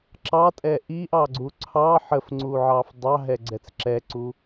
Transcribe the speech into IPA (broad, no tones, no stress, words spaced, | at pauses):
ǁɑtʼɛ ʔiʔɑɡ͡ǀu ǀʰɑ ħəfŋ͡ǀuʕɑf dˤɑɦɛɡ͡ǀɛt͡s ǁɛǀu